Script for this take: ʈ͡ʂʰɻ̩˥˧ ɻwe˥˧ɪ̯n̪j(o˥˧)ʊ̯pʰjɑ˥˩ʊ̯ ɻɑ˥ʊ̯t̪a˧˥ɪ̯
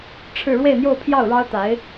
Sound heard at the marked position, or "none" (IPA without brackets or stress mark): o˥˧